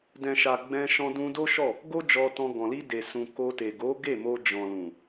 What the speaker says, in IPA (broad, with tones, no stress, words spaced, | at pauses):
dɛ̃˨ʃa˨ ɡ͡bɛ̃˧ ʃɔ̃˧dũ˧do˦ʃɔ˦˨ | ɡo˦d͡ʒɔ˧tɔ̃˧ ɡɔ̃˨li˧de˨sũ˨ ko˧te˨ ɡo˨˦ɡe˦˨mo˧ d͡ʒɔ̃˨lũ˨